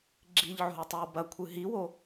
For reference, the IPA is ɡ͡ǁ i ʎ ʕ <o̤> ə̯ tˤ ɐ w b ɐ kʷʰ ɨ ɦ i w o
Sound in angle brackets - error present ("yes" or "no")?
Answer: no